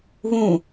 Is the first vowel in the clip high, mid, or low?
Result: high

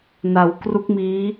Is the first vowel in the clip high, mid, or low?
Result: low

